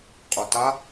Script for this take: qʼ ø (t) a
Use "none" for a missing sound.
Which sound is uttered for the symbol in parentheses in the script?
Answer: t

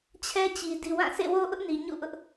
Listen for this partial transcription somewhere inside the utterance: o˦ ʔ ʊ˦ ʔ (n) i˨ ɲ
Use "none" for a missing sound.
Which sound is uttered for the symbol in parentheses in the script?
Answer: n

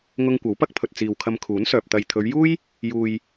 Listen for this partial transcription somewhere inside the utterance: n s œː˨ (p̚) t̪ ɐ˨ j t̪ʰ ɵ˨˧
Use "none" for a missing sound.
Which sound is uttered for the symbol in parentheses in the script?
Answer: p̚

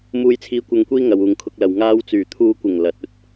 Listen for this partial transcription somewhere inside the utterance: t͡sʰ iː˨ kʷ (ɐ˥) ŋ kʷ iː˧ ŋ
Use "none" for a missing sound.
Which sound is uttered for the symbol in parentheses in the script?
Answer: ɐ˨˧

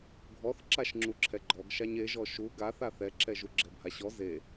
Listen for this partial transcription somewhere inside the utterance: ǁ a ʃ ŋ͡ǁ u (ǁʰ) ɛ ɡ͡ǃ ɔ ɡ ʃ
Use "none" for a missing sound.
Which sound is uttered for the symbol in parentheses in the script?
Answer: ǁʰ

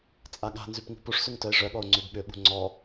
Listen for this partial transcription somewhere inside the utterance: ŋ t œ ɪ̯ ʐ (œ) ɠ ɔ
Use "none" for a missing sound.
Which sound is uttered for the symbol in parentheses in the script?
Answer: œ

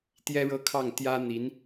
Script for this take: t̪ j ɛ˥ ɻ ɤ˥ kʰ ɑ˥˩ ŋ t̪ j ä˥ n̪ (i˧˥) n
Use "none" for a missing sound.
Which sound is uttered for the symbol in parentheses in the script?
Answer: i˧˥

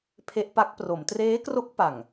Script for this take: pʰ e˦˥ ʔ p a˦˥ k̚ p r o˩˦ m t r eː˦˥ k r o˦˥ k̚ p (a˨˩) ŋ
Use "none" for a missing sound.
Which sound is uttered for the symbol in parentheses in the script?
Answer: a˨˩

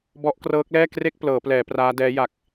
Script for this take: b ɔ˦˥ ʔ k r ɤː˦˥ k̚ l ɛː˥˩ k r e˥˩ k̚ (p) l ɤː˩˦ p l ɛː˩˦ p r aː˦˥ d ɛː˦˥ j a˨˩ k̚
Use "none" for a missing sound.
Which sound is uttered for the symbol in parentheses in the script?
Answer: p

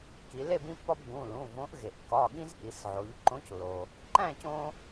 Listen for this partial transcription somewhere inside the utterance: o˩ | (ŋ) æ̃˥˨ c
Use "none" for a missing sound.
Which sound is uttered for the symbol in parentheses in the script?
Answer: ǃ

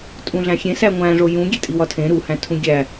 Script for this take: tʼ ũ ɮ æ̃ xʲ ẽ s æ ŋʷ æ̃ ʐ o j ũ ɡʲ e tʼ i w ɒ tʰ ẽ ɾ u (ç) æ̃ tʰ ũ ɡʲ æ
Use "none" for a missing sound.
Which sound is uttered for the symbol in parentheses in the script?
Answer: h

